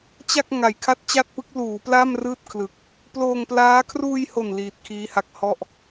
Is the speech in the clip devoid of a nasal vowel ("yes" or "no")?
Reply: yes